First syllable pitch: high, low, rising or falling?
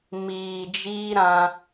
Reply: low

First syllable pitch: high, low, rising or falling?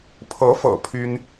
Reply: rising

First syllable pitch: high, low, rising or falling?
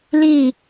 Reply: falling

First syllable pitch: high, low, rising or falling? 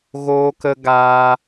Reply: high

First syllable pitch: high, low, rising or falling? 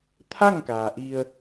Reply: falling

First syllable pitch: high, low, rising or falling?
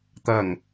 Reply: low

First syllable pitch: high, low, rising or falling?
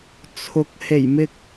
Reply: rising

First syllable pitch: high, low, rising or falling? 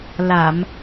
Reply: low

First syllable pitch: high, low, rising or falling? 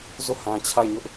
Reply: falling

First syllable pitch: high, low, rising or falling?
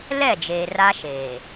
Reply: falling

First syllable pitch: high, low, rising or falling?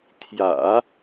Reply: low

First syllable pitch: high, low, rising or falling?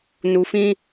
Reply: low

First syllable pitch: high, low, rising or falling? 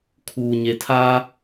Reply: low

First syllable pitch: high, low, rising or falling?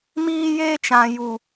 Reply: high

